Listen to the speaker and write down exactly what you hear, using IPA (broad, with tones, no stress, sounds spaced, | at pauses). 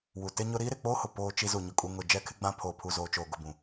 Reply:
w u˨ t ɪ˦ ɲ ʊ˦ ɾ iː˦ ɾ ɪ˨ k͡p oː˦ h ʊ˨ p oː˦ t͡ʃ i˦ z u˨ ɲ ʊ˨ kʼ u˨ ŋ ʊ˨ d͡ʒ ɛ˦ kʰ ɪ˦ ɡ͡b ã˦ pʰ oː˨ pʰ u˨ z oː˨ t͡ʃ oː˨ ɡ ʊ˨ b ũ˨